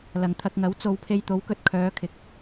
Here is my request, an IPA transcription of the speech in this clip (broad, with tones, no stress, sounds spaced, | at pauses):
l ɐ˨ ŋ t̪ʰ ɐ˧ k̚ ŋ ɐ˨˥ w t͡s o˨˧ w pʰ e˧ j t̪ o˨˥ w k ɵ˨ t̚ kʰ œː˨˧ kʰ ɪ˨˥ k̚